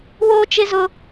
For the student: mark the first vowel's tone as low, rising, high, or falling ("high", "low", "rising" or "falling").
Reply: high